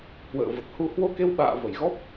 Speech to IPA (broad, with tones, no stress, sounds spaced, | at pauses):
h w ə̰ː˧˨ v ə˨˩ t̚ h u˧ h w o˧ k e˧ w ɓ a̰ː˧˨ v ə˧˩ j ɣ ɔ˦˥ p̚